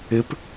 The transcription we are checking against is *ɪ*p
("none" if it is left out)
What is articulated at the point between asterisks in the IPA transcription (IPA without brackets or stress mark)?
ɪ